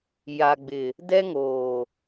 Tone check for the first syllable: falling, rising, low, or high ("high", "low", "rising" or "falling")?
low